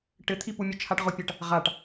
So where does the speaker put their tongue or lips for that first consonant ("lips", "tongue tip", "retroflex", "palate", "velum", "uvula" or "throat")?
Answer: retroflex